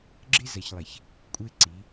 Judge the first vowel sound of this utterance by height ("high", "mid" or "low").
high